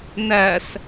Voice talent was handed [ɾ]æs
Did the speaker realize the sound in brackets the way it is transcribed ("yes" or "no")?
no